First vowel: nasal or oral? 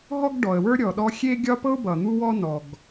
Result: oral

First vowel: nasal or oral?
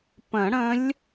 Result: nasal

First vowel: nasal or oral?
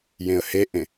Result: nasal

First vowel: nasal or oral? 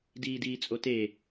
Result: oral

